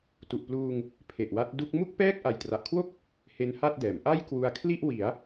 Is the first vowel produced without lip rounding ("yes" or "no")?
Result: no